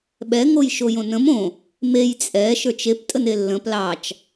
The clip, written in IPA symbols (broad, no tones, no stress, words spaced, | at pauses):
ɓɛ ŋojʃojõnə̃m õ | mej t͡sʼɛ ʃə˞t͡ʃep tʼənelːə̃ plɑt͡ʃ